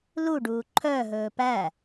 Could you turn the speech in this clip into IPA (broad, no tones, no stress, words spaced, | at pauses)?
luɖuː ǃʰœɦɵː pæ